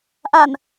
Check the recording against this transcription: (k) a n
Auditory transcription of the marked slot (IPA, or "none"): ʔ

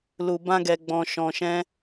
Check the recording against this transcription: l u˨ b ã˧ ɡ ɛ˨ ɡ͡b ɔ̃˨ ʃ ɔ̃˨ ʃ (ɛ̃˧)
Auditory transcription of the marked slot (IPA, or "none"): ɛ̃˧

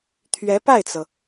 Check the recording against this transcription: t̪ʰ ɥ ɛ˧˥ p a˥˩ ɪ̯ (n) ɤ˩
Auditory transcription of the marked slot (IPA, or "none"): t͡s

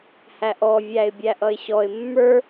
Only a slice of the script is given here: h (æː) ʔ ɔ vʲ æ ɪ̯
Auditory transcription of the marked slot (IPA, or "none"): æ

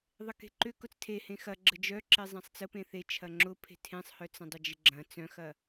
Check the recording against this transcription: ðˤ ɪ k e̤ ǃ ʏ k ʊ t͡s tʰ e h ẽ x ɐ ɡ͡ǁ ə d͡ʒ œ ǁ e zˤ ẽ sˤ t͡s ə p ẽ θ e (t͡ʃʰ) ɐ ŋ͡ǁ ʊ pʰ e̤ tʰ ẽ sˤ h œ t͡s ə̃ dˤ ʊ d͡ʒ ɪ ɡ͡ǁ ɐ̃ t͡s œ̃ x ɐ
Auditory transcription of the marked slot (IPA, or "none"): t͡ʃʰ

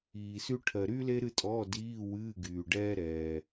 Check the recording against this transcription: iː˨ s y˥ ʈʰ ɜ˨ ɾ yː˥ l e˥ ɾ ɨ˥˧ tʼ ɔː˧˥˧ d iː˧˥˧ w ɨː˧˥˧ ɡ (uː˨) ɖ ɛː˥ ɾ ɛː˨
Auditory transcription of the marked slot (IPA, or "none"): yː˨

